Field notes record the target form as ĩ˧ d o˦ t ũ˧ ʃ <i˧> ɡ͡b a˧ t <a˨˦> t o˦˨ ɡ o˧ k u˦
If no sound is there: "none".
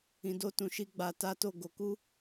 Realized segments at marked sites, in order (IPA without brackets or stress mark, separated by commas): i˦, a˦